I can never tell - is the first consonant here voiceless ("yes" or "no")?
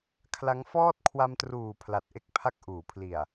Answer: yes